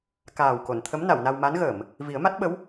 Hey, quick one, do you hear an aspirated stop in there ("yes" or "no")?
yes